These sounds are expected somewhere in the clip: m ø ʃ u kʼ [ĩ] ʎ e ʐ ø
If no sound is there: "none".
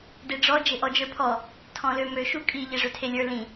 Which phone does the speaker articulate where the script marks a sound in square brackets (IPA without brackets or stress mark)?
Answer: i